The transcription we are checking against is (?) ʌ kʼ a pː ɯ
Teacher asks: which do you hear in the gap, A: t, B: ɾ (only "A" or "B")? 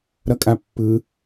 B